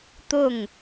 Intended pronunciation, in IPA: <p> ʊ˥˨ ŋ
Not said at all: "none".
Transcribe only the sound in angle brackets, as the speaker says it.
t̪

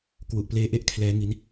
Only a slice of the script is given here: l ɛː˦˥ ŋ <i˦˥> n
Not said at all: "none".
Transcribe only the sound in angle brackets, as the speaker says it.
i˦˥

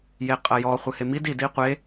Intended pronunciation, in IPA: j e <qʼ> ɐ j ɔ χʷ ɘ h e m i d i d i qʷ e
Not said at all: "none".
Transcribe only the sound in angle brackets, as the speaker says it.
qʼ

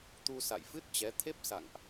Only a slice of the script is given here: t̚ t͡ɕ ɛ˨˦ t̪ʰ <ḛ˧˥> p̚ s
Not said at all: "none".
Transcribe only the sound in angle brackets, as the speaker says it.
e˦˥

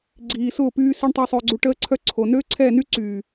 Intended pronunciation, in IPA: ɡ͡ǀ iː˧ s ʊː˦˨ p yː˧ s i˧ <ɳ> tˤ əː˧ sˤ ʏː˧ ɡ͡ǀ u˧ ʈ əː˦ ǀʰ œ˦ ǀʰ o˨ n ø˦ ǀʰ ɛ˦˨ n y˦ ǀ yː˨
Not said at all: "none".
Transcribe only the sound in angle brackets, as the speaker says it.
ɳ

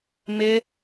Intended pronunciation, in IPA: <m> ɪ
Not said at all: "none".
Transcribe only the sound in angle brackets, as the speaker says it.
m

